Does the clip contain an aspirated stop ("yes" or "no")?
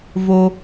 no